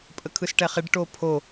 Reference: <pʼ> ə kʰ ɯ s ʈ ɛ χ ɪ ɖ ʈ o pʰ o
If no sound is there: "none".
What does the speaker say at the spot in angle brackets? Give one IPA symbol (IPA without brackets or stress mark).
pʼ